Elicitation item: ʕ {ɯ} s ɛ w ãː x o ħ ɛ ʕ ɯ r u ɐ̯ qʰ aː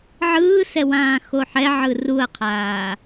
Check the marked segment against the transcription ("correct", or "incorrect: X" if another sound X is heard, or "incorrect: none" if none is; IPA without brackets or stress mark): incorrect: ɯː